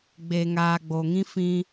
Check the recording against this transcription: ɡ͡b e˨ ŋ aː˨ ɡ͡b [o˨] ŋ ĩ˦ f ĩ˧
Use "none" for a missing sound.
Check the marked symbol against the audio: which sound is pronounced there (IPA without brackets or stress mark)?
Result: o˨